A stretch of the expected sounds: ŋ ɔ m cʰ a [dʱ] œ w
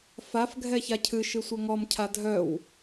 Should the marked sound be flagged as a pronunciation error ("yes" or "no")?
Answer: no